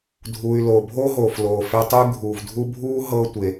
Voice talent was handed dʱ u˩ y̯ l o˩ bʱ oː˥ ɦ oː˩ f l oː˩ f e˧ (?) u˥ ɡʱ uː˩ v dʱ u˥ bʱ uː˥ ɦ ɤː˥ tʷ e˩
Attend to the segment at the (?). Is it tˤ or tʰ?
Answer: tˤ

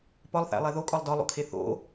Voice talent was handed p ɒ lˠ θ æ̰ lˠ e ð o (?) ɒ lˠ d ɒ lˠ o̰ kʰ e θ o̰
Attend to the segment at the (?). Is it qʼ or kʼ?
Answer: kʼ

